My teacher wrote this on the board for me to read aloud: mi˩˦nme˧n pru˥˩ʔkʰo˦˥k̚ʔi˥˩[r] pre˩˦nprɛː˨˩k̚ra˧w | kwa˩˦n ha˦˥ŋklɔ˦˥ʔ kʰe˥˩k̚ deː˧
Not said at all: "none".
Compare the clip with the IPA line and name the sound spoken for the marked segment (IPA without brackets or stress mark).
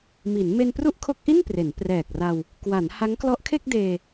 n